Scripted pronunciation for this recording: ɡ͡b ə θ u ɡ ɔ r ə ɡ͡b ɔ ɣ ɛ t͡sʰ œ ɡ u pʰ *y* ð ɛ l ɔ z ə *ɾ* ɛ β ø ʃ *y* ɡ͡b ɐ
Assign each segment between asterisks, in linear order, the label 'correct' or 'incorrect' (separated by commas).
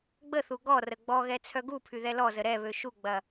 correct, correct, incorrect